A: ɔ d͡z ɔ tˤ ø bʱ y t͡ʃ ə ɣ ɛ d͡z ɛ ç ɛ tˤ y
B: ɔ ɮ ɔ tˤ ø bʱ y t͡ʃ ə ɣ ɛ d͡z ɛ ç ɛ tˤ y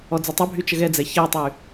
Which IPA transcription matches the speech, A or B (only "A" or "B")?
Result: A